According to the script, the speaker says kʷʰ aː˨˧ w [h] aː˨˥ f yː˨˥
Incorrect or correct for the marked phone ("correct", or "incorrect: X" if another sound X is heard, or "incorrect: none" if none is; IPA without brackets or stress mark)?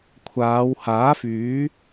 correct